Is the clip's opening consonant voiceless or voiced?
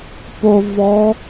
voiceless